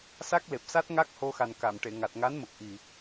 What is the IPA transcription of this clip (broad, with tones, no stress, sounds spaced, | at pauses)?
s a˦˥ k̚ l e˨˩ p̚ s a˦˥ t̚ ŋ a˦˥ k̚ h o˧ x a˨˩ n k a˨˩˨ m ʈ e˨˩˨ ŋ a˨˩ t̚ ŋ a˧˥ n m ə˨˩ k̚ ʔ i˨˩